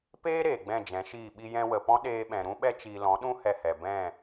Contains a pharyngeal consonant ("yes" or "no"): no